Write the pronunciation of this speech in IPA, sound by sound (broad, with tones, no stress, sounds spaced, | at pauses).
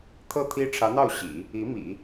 t̪ʰ ɤ˥˩ t̪ʰ i˥ ʈ͡ʂʰ ä˧˥ n̪ ɑ˥˩ ʊ̯ ɕ ḭ˨˩˦ | i˧˥ m ḭ˨˩˦